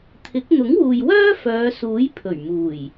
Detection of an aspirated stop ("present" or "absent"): present